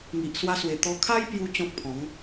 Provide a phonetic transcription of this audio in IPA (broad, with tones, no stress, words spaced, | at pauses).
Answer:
ŋi˨ʔ swa˧swe˨˩ t̪ɔ˧ kʰa˦jpju˧ t͡ɕɔ̃˦k̚ pʰɔ̃˨˦ŋ